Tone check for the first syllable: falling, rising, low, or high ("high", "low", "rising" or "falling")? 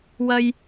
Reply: high